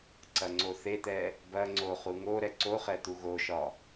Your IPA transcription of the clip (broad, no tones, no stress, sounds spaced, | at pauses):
ǀ ɐ ŋ͡ǀ o θ e t̪ ɛ | b ɐ ŋ͡ǀ o χ u ŋ o ɾ ɛ ǀ o χ ɛ t̪ u ɣ o ʃ ɒ